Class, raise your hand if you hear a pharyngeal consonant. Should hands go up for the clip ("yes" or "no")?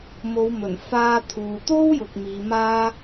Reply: no